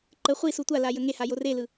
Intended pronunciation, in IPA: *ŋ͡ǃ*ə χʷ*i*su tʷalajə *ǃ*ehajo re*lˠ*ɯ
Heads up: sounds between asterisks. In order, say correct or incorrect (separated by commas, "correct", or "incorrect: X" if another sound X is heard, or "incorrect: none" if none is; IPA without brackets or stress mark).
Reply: incorrect: ǃ, correct, incorrect: ŋ, incorrect: l